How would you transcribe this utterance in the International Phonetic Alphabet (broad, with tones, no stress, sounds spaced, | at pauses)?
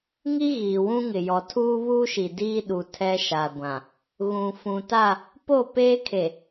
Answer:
ŋ i˦ ɣ iː˨ w ũ˦ ŋ ɪ˨ j ɔ˨ tʰ uː˦ β uː˦ ʃ i˨ d iː˦ ɗ u˨ tʰ ɛ˦ ʃ a˨ ɡʷ ã˨ | ɣ ũ˨ f ũ˨ t a˦˨ | p o˦˨ p eː˦ kʰ e˨